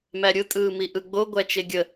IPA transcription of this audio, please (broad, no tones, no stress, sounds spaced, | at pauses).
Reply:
m æ ɾʲ ɯ tʼ ɯː m i ʔ ɯ ɡ͡b o ɡʷ æ t͡ʃ e ɡʲ ə